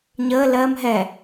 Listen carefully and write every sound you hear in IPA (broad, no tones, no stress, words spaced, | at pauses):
ɲəː lɜm ɦɛ